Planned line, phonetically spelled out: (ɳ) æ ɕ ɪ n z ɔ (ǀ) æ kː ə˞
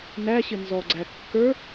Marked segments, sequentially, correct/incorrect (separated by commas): incorrect, incorrect